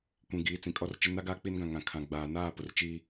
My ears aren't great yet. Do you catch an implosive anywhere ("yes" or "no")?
no